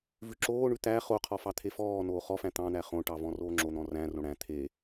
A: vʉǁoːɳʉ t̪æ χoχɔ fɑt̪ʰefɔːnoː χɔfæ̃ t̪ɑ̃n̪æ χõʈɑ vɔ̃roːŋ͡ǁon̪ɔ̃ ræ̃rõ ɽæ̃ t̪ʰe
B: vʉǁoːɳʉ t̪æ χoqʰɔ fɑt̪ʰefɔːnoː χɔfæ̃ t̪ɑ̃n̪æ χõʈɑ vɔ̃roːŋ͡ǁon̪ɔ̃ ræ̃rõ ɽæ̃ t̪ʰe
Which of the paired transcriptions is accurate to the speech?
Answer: B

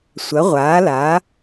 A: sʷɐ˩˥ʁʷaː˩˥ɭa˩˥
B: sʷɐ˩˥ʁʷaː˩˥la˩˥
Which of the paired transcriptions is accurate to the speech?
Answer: B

